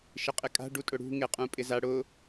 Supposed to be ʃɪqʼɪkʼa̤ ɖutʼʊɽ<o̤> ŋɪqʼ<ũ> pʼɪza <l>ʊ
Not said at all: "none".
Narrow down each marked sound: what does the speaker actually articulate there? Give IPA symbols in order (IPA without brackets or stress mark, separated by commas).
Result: ṳ, ũ, ɽ